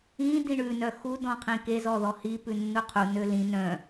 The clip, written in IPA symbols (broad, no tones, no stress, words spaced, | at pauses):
ĩ dĩɳʉ nœxu dɔ̃qʰĩke zɔðɔhi pʉnːuqʰu nølĩ nœ̃